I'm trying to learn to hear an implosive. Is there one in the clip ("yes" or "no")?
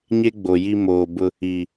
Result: no